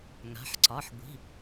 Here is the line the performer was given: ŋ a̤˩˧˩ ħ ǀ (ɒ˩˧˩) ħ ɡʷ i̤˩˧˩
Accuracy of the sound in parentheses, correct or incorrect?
correct